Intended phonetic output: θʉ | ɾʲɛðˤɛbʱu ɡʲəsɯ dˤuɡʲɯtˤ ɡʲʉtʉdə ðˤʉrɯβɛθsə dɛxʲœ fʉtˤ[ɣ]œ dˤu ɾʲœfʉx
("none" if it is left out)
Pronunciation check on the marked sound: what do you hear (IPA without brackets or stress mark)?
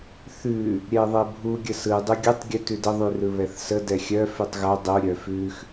ɣ